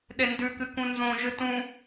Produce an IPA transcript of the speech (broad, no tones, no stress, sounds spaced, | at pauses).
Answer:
ɗ e n d ʉ k ɨ k ũ n z õ ʒ ɨ t ũ